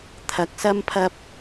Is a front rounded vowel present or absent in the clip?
absent